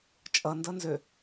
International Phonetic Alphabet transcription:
t͡ʃʼ ʌ n d ʌ n z ø

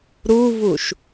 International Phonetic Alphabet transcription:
ɾ u v u ʃ

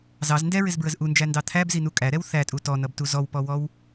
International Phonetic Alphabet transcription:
z ɑ z n d ɛ ɹ ɪ z b ɹ ə z ʔ u n d͡ʒ æ n d ɑ t̪ʰ æ b z i n u kʼ æ ɾ ɛ w θ æ tʼ u t ɔ n ʌ b t u z ɔ w p ɔ w ɔ w

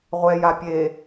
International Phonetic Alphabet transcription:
ʁʷ ɛ j a pʲ e

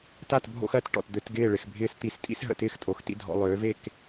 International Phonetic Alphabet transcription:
t a˦˨ t bʱ o̰˧ x ɜ˨˦ t ʈ ɔ̰˨ t d̪ ø˧ t ɡ ɪː˦˨ ɭ ɪ˨ x bʱ ɪː˧ s t̪ i˧ s tʼ ḭ˦ s ɦ ə̰˧ t ɪː˦ x tʼ o˨ x t ḭ˦ dʱ ɔ̰˧ lˠ øː˨˦ v e˦˨ k

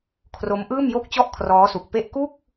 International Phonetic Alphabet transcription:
kʰ r o˦˥ m ʔ ɯː˥˩ m j o˥˩ k̚ t͡ɕ ɔ˥˩ ʔ kʰ r ɔː˦˥ s u˨˩ k̚ p e˥˩ ʔ k u˥˩ k̚

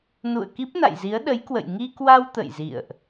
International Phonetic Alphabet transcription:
n ṵ˧˨ ə̯ k i˦˥ p̚ n a̰˧˨ j z i˨˦ ə̯ ɗ ə˨˦ j k w ə̰˧˨ j ŋ i˧ k w a˧ w t̪ ə̰˧˨ j z ḭ˧˨ ə̯ ʔ

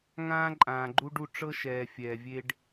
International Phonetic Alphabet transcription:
ŋ ãː˧ ǃʼ ãː˨ ɡ͡ǃ u˧ ɖ u˧ ʈ͡ʂ ɤ˧ ʃ ɛː˨ fʲ ɛː˨ vʲ e˧ ɖ

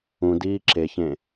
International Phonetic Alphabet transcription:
ũ d iː ǁ e ç ẽ

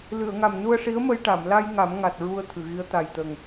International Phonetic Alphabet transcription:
l ɨ˨˩˨ ə̯ ŋ a˨˩ m n u˧ ə̯ ʂ i˧˥ ə̯ m ə˧ j ʈ a˨˩˨ m l a˧ j ŋ a˨˩˦ m ŋ a˨˩ t̚ ɹ u˧ ə̯ t̪ʰ ɨ˨˩˨ ɣ i˧˥ ə̯ t̪ a˨˩ j t̪ ə˨˩ ŋ

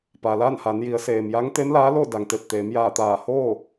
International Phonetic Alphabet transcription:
p a˩ l aː˥˨ n h a˩˧ n j i˩˧ ə̯ s eː˩ m j a˧˥ ŋ t̪ e˧˥ m l aː˧˥ l o˥˨ d a˩ ŋ t̪ e˧˩ p̚ t̪ eː˩˧ m j aː˧˩ t̪ aː˧˩ h oː˥˨

